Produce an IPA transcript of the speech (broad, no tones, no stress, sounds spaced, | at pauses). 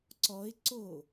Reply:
ǀ ɔ ɪ̯ ǀ o